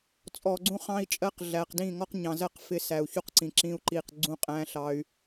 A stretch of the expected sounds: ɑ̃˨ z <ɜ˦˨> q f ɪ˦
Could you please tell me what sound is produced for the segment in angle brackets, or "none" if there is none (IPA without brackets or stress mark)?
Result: ɜ˦˨